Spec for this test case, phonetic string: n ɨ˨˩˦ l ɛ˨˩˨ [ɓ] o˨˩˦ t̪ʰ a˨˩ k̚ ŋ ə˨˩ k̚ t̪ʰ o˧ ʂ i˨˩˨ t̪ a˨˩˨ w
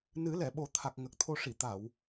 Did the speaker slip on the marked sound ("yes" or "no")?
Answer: no